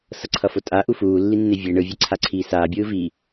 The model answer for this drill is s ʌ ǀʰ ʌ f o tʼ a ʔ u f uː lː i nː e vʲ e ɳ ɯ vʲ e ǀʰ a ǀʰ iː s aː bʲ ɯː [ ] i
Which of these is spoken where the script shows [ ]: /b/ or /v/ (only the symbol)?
v